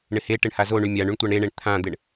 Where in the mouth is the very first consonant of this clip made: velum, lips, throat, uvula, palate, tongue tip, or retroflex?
retroflex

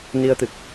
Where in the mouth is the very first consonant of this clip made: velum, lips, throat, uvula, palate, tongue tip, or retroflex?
tongue tip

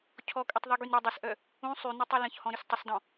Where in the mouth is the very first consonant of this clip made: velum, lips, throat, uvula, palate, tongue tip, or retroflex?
palate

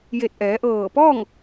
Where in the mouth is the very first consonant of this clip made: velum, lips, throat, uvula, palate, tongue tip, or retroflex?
palate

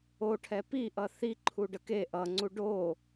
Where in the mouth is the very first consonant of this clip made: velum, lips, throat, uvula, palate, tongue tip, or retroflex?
retroflex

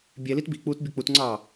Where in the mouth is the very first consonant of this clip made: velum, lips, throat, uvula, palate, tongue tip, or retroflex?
lips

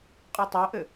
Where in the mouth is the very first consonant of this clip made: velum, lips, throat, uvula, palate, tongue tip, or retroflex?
uvula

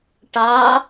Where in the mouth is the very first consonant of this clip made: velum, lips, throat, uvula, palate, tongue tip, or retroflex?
retroflex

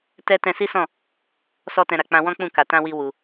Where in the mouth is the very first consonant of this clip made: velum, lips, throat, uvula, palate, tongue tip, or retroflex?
tongue tip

